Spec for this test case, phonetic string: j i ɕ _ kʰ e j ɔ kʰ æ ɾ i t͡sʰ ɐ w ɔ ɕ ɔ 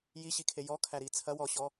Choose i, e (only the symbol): i